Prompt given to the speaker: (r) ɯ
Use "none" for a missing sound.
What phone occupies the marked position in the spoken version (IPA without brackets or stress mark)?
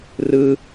r